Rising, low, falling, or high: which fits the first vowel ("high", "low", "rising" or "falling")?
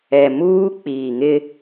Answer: low